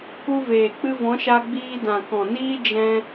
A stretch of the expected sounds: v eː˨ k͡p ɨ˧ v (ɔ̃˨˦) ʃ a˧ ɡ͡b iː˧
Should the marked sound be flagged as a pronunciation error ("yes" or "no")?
no